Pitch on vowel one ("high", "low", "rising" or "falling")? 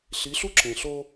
rising